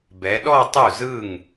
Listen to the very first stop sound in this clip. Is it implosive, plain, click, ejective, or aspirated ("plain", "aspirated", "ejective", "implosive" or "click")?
plain